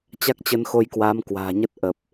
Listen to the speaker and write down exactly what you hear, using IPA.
t͡ɕa˦˥k̚t͡ɕə˧nxo˧jkwaː˨˦m kwa̤ː˨˩ɲə˦˥t̚ ʔə˨˩p̚

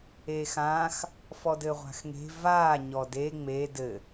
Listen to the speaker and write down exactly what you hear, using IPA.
eːxãːx | fɔdɘːʁʷa̤xŋe̤ vaː ɲɔde ŋ͡me dɘ

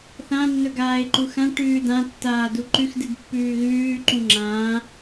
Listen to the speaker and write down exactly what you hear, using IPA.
θã nːɵɡaːɪ̯ǃuxã ʈʉːdã tːaːduǃʉx dɨdpːʉːɣʉː ǃũŋ͡ǁãː

